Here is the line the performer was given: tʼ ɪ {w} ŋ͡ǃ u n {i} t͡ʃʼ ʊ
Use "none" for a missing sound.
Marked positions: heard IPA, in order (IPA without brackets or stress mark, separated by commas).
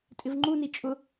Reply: v, i